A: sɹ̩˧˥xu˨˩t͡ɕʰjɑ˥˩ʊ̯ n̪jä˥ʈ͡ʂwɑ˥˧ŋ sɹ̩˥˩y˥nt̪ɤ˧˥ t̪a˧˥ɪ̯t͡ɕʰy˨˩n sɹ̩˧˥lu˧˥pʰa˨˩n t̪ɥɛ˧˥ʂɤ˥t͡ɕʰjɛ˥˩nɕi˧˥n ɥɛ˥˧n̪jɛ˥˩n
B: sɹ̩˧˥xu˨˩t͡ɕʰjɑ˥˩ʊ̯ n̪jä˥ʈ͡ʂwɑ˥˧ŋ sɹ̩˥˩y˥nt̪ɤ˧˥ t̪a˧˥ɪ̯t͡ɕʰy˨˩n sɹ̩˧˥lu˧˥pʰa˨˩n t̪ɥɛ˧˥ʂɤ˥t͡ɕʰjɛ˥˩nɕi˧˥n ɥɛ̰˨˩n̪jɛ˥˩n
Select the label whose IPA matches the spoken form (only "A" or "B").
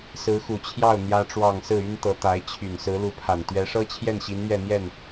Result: A